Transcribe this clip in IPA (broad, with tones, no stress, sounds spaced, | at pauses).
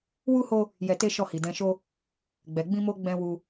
w u˦ h o˦ | j ɛ˧ t e˦ ʃ ɔ˦˨ h i˨ d ɛ̃˧ ʃ o˦ | ɡ͡b ɛ˨ ɡ͡b ĩ˧ m o˧ ɡ͡b ɛ̃˦ w u˦